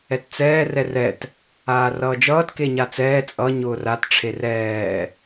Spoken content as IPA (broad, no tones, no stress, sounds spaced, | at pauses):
ɛ t t͡s ɛː r ɛ r ɛ t | aː r ʌː d͡ʒ ʌː t k e ɲ a t͡s ɛː t͡sʼ ʌ ɲ ʊː r a t ʈ͡ʂʰ e r ɛː